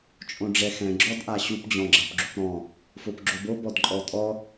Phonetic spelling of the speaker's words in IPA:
t͡ʃʼ õ ɖ͡ʐ ɛ x ɛ̃ ɡ͡ǁ ɔ d ʔ a ɕ u p d͡ʑ ɔ̃ ɡ͡ǁ a p ɡ͡ǁ u p ɾ ɔ̃ | f o p ɡ͡ǁ o b o b ɔ d ǃʼ ɔ tʼ ɔ

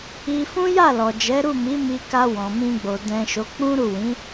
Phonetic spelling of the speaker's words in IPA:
i˧ f ũ˦ j a˦˨ l ɔ˨ d͡ʒ ɛ˨˦ ɾ u˦˨ m i˨˦ m i˧ k a˧ w ɔ̃˨ m ĩ˧ ɡ͡b o˨ d ɛ̃˨ ʃ o˨˦ k͡p ũ˦ ɾ u˦˨ w ĩ˨˦

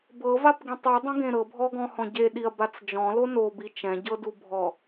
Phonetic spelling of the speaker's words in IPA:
b ɤ v a p ɡ ĩ tˤ u dˤ ẽ ɡ ẽ ɾ ɤ bʱ ɔ ɡ ɔ̃ h ɔ̃ ɟ e ɗ i ɐ̯ b a t͡s d͡ʒ ɔ̃ l o n o b i t͡ʃ ɛ̃ ɟ ɤ d u bʱ ɔ

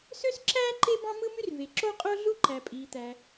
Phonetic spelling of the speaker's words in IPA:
s ø˥ s ǁ æː˥ ǃ e˥ b ɑ̃˥ m ɯ˥ m y˥ r v e˩ ǁ o˥ qʼ o˥ ɮ u˥ ǃ æ˩ pʼ iː˩ t̪ æ˩

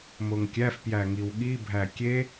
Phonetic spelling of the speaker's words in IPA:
m o ŋ kʲ æ f p j æ ŋ i w ɠ i bʱ æ kʲ e

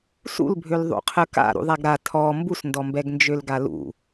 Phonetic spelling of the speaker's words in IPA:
s ṵ l bʱ ø l ðˤ ṵ qʰ ə k a̰ ɾ ṵ ðˤ a ɡ ɾ a tʰ ɔ m b u s n d ɔ m b ɛ ɡ n d͡ʒ ø l ɡ a l ṵ

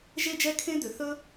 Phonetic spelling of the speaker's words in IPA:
ʒ e˥ d͡ʒ ɛ˥ kʰ ẽ˥ d̪ ʏ˧ θ ɵ˥

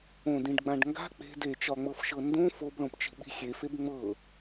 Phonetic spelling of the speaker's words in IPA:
õ d ĩ ɖ ɡ͡b ã ɖ ŋ ɡ a̤ k͡p e̤ d e t͡ʃ ɒ ŋ͡m ɤ f ʃ ɤ n d õ f o b ɭ õ p t͡ʃ i̤ ɓ i̤ xʲ e f e b ŋ͡m ɤ

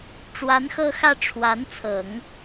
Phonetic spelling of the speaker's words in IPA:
ʈ͡ʂ w a˧˥ n x ɤ˥˧ x ä˥˩ ʈ͡ʂʰ w a˧˥ n t͡sʰ ɤ˨˩˦ ŋ

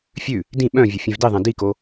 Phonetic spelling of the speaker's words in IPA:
fʲ ʉ | d ĩ ɓ œ̃ vʲ o fʲ ẽ v d i ðˤ ẽ d i k o

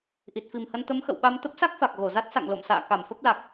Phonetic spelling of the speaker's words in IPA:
ʔ i˨˩ t̚ f i˨˩ m h ə˧ n t̪ ə˨˦ m x ə̰˧˨ w ɓ a˧ m t̪ ə˦˥ p̚ s a˦˥ k̚ f a˨˩ k̚ ɣ o˧˩ z a˦˥ t̚ s a̰˧˨ ŋ l o̰˧˨ m s a̰ː˧˨ k a˧˩ m f ə˦˥ p̚ l a˨˩ k̚

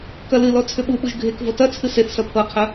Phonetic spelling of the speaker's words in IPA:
k ɐ l ɨ l ɔ t͡sʰ ʏ ɓ u ɓ u ʒ ɡʱ e k v ɤ t ɐ t͡sʰ ɨ s e θ s ɐ pʰ ɤ qʰ ɐ

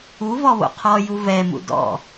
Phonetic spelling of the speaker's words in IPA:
u v ɔ β o̰ qʰ ɔ j u v ɛ m ṵ d ɔ̰

